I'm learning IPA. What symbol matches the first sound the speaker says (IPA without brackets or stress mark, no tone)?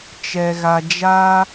t͡ʃ